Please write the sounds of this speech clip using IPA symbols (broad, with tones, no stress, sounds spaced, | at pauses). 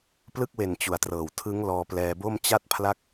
p l ɯ˥˩ k̚ w e˨˩ n t͡ɕ u˨˩ a̯ t r ɤː˨˩ w tʰ ɯ˦˥ ŋ l ɔː˧ p l ɛː˧ b o˥˩ m t͡ɕ a˦˥ t̚ pʰ l a˦˥ k̚